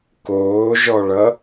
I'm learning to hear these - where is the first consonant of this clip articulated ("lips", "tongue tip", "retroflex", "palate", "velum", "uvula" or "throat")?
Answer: velum